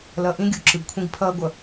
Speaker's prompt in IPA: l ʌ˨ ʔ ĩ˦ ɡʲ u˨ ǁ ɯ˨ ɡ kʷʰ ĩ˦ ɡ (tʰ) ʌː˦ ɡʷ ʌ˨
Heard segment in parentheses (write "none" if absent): pʰ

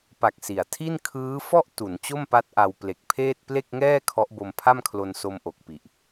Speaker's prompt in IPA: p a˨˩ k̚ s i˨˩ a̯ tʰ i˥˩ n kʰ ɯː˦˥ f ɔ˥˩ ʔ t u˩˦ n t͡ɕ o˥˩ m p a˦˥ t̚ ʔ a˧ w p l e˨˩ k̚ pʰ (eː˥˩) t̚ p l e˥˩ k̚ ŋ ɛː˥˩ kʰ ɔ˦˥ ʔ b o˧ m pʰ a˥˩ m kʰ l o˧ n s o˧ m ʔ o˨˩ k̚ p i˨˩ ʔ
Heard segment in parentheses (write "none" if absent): eː˥˩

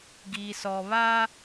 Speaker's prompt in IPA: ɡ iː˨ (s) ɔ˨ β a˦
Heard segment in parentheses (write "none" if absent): s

